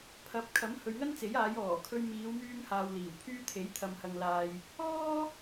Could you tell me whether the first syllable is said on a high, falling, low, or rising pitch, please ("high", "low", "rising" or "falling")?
rising